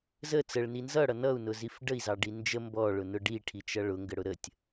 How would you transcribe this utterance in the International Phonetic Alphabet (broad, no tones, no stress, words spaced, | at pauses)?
zə t͡səɭni nzʌɽʌ nʌu̯nʊzif ɖəi̯zɑɖi nd͡ʒə mbɔɭʊnʊ ɖiʈʰit͡ʃʌ ɭʊŋɡəɽʊ ɾətʲ